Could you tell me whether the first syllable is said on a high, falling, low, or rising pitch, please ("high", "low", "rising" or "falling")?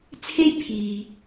high